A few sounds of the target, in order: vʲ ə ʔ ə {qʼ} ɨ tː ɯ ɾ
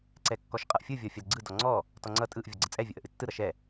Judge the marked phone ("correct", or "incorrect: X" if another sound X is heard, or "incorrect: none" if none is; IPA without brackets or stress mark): incorrect: ʔ